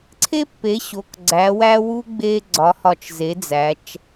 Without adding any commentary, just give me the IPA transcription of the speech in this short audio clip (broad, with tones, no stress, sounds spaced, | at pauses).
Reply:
ǀʰ e˥ pː e˩˥ ɕ o˩˧˩ k ɡ͡ǀ æ˩˥ w æ˥ w u˥ ɡ͡b e˥ ɡ͡ǀ ɒ˩˥ h ɒ˧˩ t͡ʃ z e˩˥ d͡z æ˩˧ t͡ʃ